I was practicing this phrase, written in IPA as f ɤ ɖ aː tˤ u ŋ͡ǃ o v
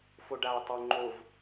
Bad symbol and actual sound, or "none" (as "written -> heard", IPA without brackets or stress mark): ɤ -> o